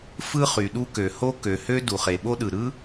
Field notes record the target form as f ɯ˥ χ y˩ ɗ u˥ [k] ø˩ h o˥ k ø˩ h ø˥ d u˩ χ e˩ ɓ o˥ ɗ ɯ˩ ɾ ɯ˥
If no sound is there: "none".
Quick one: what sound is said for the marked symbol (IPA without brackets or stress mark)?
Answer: k